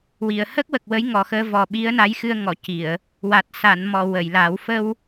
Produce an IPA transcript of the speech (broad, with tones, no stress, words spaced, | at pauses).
wi˨˩˨ə̯ hə˦˥k̚wə˨˩k̚ wə˧˥jŋɔ˨˩xəː˧vɔ˨˩ ɓi˧˥ə̯na˧˥jxɨ˧ə̯ ŋɔ˨˩˨ ci˨˩˨ə̯ | wa˨˩t̚sa˨˩˨nmɔ˨˩˨ wə˨˩˨jla˨˩˦w fə˧w